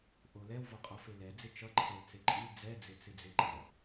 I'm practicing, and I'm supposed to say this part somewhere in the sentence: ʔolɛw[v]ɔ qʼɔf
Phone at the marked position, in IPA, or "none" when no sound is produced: v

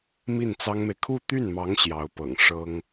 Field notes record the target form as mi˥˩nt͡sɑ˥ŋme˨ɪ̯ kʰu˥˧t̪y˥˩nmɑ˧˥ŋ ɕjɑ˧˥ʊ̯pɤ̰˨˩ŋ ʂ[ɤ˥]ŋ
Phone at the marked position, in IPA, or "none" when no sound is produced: ɤ˥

